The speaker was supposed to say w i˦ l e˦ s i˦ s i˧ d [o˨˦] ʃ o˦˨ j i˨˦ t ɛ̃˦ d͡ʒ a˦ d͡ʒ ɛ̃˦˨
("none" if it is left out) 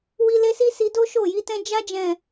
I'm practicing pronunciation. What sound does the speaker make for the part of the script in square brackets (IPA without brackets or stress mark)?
o˦